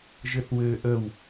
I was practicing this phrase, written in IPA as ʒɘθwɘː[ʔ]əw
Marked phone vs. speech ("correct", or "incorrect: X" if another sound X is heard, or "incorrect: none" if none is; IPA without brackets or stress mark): correct